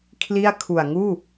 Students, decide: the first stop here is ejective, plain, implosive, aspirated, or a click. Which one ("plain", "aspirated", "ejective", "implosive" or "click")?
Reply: aspirated